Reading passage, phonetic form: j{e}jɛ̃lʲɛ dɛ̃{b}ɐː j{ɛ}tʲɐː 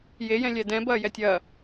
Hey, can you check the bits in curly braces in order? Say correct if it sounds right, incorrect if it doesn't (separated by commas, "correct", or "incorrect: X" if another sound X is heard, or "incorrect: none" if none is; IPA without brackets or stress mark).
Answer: correct, correct, correct